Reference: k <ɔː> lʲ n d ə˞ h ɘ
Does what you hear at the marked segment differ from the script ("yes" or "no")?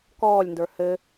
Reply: no